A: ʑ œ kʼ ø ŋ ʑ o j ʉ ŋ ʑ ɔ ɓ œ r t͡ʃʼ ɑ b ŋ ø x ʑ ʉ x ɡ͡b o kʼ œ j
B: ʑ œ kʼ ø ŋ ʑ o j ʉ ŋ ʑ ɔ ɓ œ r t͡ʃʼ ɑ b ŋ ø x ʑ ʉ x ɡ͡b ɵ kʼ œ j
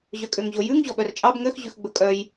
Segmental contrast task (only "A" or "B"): B